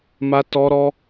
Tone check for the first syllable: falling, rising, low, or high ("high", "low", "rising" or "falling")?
high